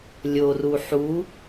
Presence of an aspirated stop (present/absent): absent